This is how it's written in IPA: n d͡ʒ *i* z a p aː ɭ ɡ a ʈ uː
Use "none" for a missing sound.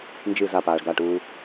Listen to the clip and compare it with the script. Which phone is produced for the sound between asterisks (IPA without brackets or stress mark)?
ɨ